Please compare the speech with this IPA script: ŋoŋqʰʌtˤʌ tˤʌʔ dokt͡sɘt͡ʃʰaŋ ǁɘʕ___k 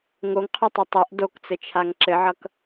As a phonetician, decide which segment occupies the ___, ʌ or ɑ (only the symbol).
ʌ